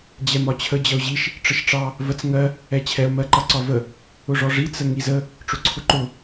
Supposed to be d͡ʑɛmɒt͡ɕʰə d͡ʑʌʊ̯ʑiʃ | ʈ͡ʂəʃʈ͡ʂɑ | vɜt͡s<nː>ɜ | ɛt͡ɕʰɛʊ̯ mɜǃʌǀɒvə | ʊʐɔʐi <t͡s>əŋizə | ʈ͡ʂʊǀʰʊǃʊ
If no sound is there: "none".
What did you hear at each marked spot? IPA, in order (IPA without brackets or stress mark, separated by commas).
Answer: ŋ, t͡s